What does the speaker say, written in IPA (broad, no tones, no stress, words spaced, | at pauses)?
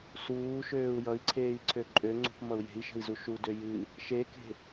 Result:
suːʃøːu̯ jʌi̯ǀʰeːi̯ǀʰø ǃʼøŋ͡ǀṳpmʌu̯ je̤i̯ʃə̤i̯zu ʃudø jɨ | ʃeke̤